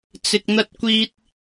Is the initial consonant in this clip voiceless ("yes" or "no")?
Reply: yes